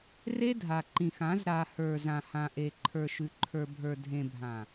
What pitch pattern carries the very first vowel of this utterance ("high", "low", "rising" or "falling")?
high